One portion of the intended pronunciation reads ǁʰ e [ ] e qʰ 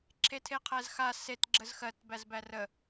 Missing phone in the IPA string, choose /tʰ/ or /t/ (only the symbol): tʰ